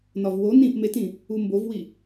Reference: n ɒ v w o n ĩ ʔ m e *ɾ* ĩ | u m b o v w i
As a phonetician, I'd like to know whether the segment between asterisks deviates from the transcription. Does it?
yes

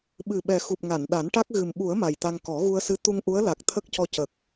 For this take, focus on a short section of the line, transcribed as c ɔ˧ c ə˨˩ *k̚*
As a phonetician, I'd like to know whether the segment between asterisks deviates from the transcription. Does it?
no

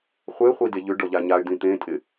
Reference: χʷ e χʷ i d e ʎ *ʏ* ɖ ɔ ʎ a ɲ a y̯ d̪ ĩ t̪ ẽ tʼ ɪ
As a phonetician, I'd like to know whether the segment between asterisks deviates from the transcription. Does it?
no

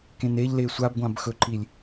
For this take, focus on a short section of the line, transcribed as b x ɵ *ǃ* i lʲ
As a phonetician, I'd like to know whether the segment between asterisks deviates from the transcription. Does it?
no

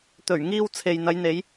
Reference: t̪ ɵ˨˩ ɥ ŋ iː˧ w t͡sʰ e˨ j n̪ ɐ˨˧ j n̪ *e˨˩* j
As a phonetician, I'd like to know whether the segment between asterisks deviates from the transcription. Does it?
yes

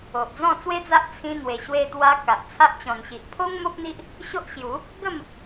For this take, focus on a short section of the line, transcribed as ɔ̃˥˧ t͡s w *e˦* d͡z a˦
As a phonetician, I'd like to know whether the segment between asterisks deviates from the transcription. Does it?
no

